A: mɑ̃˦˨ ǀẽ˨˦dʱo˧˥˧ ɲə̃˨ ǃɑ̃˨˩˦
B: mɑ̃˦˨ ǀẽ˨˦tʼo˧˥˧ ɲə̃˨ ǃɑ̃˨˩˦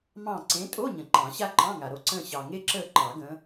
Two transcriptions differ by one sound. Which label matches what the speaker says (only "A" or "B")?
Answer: B